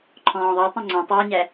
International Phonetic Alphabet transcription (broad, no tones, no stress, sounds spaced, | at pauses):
ǃʰ ɔ̃ː ðˤ ɑ tˤ ɛ̃ ŋ͡ǀ ɔ̃ tˤ ʊː ɲ æ